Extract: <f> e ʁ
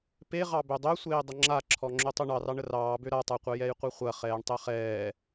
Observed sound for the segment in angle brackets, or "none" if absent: p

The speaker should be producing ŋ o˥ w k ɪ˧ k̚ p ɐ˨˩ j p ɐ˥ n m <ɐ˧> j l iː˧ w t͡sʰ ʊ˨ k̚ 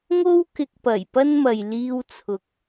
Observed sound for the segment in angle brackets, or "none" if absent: ɐ˨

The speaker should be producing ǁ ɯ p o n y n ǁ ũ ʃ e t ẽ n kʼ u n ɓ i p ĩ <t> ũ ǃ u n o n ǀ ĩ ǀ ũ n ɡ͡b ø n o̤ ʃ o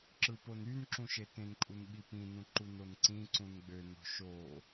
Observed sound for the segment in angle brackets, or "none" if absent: n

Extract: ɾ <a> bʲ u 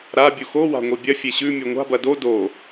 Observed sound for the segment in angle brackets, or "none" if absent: a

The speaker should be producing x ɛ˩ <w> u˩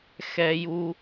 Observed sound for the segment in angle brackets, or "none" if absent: j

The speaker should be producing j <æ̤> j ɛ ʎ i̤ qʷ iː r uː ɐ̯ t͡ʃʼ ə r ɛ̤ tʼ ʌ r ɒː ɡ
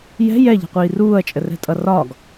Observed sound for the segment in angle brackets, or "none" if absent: ɛ̤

